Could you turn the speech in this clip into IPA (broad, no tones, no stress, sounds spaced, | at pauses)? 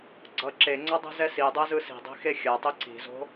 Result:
ɡ͡ǀ ʌ ǁ e ŋ͡ǀ ʌ dˤ i̤ z ɛ s i dˤ ɛ z ɯ s i̤ dˤ i̤ x e xʲ a tˤ i ǀ i̤ z o̤